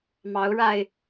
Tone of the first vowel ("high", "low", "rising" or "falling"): rising